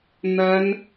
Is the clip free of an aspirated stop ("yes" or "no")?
yes